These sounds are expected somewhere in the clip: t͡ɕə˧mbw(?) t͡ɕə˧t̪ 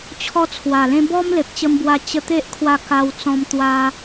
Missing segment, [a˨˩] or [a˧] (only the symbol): a˧